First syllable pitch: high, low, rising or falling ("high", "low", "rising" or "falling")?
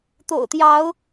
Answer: low